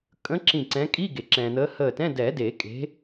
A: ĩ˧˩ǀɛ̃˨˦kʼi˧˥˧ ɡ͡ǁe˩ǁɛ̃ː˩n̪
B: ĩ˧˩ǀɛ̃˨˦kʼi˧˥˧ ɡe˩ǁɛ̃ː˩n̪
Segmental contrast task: B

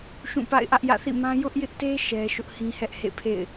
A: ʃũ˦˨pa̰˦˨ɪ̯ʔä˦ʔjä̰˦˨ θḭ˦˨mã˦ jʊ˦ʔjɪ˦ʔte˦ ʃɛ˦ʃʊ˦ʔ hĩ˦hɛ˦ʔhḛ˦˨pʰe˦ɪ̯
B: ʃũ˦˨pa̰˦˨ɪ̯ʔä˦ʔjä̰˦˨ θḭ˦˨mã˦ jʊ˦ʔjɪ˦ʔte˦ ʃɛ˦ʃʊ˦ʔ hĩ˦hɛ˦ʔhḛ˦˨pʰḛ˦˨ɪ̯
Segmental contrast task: B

